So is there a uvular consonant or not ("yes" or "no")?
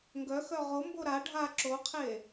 yes